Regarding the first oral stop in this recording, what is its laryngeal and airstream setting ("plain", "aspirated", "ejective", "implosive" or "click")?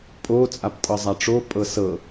ejective